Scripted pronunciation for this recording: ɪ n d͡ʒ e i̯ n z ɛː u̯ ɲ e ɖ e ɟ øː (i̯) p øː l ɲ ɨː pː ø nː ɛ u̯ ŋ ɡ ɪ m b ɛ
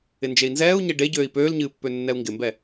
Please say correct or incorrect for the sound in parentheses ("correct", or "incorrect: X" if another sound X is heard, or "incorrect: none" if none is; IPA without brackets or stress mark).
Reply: correct